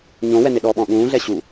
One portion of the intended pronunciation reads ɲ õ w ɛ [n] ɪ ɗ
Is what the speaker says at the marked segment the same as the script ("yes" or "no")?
yes